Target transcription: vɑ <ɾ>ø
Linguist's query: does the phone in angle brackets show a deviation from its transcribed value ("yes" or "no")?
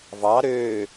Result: no